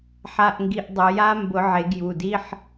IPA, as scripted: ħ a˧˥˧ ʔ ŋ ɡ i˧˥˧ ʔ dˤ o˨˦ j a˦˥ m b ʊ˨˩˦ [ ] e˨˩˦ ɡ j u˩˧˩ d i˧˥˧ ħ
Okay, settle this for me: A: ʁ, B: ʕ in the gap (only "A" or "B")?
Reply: B